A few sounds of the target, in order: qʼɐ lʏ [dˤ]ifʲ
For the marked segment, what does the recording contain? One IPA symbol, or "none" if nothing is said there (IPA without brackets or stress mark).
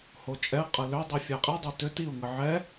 dˤ